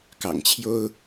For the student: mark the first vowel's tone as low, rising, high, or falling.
low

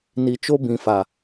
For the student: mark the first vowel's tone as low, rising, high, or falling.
low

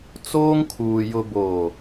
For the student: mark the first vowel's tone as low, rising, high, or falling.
high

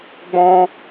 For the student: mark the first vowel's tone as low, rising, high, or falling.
high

